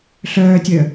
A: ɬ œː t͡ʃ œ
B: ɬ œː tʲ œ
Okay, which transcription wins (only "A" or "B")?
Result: B